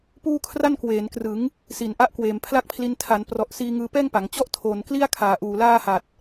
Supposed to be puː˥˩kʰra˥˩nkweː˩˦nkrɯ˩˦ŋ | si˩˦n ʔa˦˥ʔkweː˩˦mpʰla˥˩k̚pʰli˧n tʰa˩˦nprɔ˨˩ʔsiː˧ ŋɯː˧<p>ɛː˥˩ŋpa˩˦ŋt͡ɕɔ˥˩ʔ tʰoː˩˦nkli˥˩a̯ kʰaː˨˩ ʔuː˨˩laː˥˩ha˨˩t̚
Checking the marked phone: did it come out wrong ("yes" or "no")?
no